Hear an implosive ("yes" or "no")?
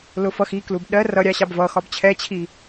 yes